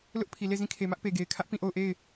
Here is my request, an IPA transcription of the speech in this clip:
l ʊ˦ ʔ pʰ i˨ l e˦˨ z ĩ˦˨ kʰ e˨ m ä˦ ʔ p e˨ ɡ e˨ ɪ̯ kʰ ä˦ ʔ p ĩ˦˨ ʔ o˦˨ ʊ̯ ʔ e˦˨ ɪ̯

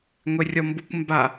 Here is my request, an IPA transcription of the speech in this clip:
ŋʷ e rʲ ɔ m b u kʷ m b a

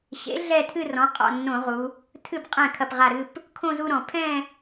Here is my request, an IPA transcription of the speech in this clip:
ɕ ḛ˩˥ ɮ ɛ˥˧ tʰ ɨ˥˧ r ɔ̃˩˥ qʼ ɔ̰˧˩ nː õ˧˩˧ ʁ u˩˧ | tʰ ɨ˥˩ b qʼ ɛ̃˥˩ kʰ ɐ˧˩ p ʁ a˧˩ ɾ ɨ˥˧ p | kʰ õ˥˧ z u˥˧ ɾ ɔ̃˧˩˧ pʰ ɛ̃˥˧

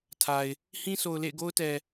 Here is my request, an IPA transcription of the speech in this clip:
tʰ a˨ ɪ̯ | h ĩ˦ s o˨ ʊ̯ l ḛ˦˨ ɪ̯ ɡ o˦ ʊ̯ t ɛ˨

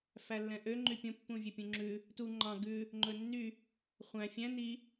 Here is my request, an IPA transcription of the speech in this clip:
f æ lː ɛ̃ ʔ ø ŋ͡ǃ y pʲ õ pː ũ vʲ ø pʲ ũ ŋ͡ǁ ʉ | t u ŋ͡ǃ ɑ̃ ɡ ʉ | ŋ͡ǃ ɵ nː y | χʷ æ̃ fʲ æ̃ n i

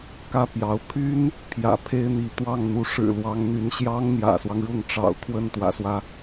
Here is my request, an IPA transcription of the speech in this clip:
k ä˥ p j ɑ˧˥ ʊ̯ pʰ y˥ n | pʰ j ä̰˨˩ pʰ e˥ ɪ̯ n̪ i˧˥ t̪ w ɑ˥˩ ŋ n̪ u˧˥ ʂ ɻ̩˨˩ l w ɑ˧˥ ŋ n̪ y˧˥ n ɕ j ɑ˥ ŋ n̪ j ä̰˨˩ s w ɑ˦ ŋ ɻ ʊ˥˩ ŋ ʈ͡ʂ ɑ̰˨˩ ʊ̯ kʰ w ə˥˩ n t̪ w ä̰˨˩ s w ä˦

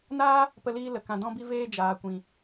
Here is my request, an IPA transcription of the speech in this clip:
n aː˦ | p ə˧ l iː˧ l ə˨ k ã˨ d ɔ̃˧ b i˧ v eː˧ d͡ʒ aː˨ kʷ ĩ˨

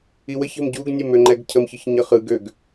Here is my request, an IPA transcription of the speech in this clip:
i w ə ç ə̤ m ɟ u ɡ nʲ ɛ m ø ŋ͡ǃ ɛ ɡ cʰ ə m ç ɯ ç ɲ ʌ χ ɯ ɡ ø ɡ

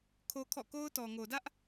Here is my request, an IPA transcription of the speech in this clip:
kʰ o˦ kʰ ɔ̰˦˨ k o˦ ʊ̯ t ɔ˨ ŋ o˨ d ä˦ ʔ

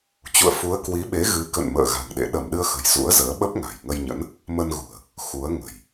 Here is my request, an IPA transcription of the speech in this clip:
t͡ɕ ṵ˧˨ ə̯ f u˨˦ ə̯ k w i˨˦ ɓ e˨˦ ɣ ɨ˨˦ k ə̰˧˨ n m ə̰ː˧˨ ɣ a̤˨˩ ŋ ɗ ḛ˧˨ ɗ ə˧˩ m ɗ ɨ˧ ə̯ x ə̤˨˩ j z ṵ˧˥ ə̯ z əː˨˦ ɓ ə˦˥ p̚ ŋ a̤˨˩ j ŋ ə˧ j ɲ ə̰˧˥ n | m ə˧ n ɣ ṳ˨˩ ə̯ | x u˨˦ ə̯ ŋ ə̤˨˩ j

